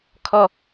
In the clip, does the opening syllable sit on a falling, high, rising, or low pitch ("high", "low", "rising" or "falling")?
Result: high